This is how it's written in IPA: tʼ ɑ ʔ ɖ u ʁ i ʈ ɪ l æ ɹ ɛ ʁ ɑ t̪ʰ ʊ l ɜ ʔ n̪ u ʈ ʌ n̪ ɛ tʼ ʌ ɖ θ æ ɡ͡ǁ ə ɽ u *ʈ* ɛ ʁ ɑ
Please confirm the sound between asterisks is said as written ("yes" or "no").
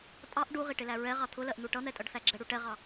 yes